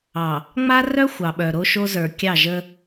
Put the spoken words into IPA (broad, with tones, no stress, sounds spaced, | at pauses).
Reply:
ɑ˨ | ŋ͡m a˦ r œ˦ xʷ ɑ˨ ɓ œ˨ ɾ o˦ ʃ o˦ z ə˞˨ kʲ ɑ˦˨ ʒ ə˦